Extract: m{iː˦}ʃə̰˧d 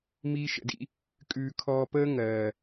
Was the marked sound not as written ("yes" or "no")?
no